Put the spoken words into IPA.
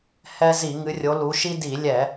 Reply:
hɛ˦ zi˧˩˧ŋɨ˨˦rʲo˨˦lu˨˦ ʃi˦di˧˩˧lʲɛ˧˩˧

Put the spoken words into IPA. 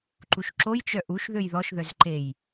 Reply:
ǃuʃǁojt͡ʃœ ʔuʃ ðøjðɔʃðœz ǃej

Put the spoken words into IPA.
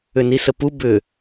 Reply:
ʏnisəpu bʏ

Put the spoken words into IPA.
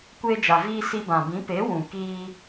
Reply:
kʷeː˧d͡ʒa˨ viː˧ si˧bã˨bĩ˨˦ pe˨˦ wũ˨ kiː˧

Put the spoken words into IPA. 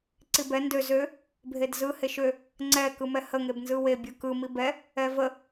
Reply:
ǀibɛ ndø zø | bʱedzɯ heʃø | ŋ͡ǀɛ kɯmɛhə ŋebnzɯwe bʲɯkɯ mibɛ | ɛvə

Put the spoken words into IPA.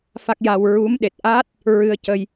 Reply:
fa˦˥k̚ja˧w ɹu˧˥mɗe˨˩t̚ʔa˦˥t̚ | ɹɨ˧ə̯cə˧j

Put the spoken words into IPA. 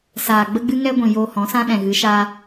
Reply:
saː˨ ɡ͡bə˧ɡ͡bɨ˧ ŋɛ˦ɡʷĩ˨ joː˧hɔ̃˨˦sã˦ ɗɛ̃˨ ɣɨ˨˦ʃaː˦

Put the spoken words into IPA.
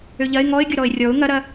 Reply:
øʎɐɪ̯ ŋɔɪ̯ɡʲʊ ɾɔɪ̯rʲɔʊ̯ ŋɐɾɐ

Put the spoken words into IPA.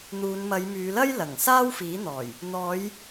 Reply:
n̪uː˨˧nmɐ˨˧jmyː˨˧lɐ˥j lɐ˨˩ŋ saː˥wfiː˨˥n̪ɔː˨˩j | n̪ɔː˨˧j

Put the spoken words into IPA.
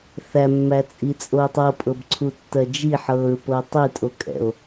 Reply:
θæmːæt͡sʼit͡sʼoːtˤ ɤpʼɤbǀʰutːɜ d͡ʒiħɤːɹpɤ tˤitʼokʼɛ̰o̯

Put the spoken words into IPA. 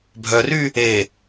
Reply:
bʱœry | e

